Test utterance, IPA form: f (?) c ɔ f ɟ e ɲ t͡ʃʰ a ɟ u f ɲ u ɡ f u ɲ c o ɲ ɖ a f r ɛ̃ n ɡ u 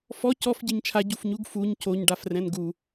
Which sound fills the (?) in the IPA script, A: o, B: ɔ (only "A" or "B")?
B